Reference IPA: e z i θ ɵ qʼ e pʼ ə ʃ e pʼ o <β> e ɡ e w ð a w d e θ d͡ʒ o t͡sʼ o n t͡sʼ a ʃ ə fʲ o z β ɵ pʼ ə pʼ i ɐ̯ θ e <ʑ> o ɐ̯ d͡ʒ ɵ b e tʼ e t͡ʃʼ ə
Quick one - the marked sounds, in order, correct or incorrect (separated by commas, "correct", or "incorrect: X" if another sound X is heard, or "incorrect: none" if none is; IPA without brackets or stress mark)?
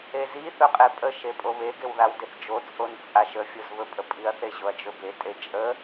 correct, correct